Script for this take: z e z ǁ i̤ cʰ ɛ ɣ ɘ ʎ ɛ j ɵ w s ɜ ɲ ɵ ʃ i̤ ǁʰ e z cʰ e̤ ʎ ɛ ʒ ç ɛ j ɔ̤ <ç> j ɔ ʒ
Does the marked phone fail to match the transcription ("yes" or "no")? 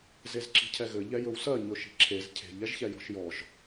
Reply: yes